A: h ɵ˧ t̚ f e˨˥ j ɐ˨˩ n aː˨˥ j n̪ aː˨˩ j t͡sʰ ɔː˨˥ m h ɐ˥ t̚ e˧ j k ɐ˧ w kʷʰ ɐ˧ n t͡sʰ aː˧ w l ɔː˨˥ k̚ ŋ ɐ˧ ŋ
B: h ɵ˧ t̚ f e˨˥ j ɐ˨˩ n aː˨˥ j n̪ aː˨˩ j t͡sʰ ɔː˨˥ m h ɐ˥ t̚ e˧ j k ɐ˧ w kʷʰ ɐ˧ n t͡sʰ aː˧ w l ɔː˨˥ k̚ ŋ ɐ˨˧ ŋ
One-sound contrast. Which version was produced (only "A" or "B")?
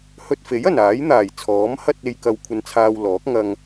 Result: A